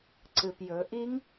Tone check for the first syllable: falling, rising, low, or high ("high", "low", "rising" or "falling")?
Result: low